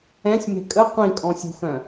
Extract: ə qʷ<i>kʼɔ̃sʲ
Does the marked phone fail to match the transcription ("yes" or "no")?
yes